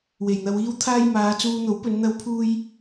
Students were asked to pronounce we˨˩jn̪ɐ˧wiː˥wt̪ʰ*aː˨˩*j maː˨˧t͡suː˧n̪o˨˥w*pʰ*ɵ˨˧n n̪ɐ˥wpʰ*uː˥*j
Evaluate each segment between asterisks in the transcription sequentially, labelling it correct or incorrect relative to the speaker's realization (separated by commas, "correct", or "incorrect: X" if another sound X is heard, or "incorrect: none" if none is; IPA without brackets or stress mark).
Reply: incorrect: aː˥, incorrect: p, correct